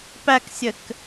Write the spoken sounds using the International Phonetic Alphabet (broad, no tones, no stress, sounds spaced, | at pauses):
p æ k sʲ ɘ k